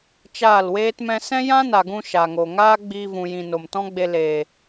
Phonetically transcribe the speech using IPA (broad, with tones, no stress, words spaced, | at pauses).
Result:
t͡ʃaː˦˨lweː˦tmɛ̃˦ sɛ̃˦jã˦na˨ɡũ˧ ʃa˨ŋo˨ ŋaː˦ɡ͡biː˧vũ˨jĩ˨ no˨mtɔ̃˦ɡ͡be˧leː˨